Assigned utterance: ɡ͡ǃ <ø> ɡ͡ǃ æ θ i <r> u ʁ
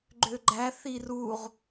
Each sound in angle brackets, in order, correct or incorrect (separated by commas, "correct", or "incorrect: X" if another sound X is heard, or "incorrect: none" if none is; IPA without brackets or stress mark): correct, correct